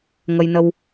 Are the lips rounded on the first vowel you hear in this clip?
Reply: no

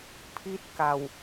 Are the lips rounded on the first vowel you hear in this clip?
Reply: no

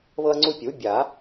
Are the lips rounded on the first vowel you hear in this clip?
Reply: no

